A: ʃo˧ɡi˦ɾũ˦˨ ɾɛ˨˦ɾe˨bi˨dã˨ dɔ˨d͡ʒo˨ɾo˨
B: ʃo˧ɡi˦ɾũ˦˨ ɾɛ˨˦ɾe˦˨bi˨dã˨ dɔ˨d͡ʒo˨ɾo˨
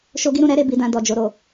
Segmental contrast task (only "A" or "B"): B